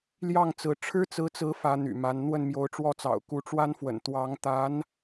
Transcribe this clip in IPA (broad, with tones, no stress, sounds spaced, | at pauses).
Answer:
l j ɑ˥˩ ŋ t͡s ɹ̩˧˥ ʈ͡ʂʰ ɻ̩˥ t͡s ɹ̩˧˥ t͡s ɹ̩˧˥ f ä˧˥ n̪ y̰˨˩ m a˧˥ n n̪ w ə˥˩ n m j o˧˥ ʊ̯ ʈ͡ʂ w ɔ˥ t͡s ɑ̰˨˩ ʊ̯ k u˧˥ ʈ͡ʂ w a˥ n f w ə̰˨˩ n t̪ w ɑ˧˥ ŋ t̪ a˧˥ n